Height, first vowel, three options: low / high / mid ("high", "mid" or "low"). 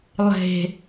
mid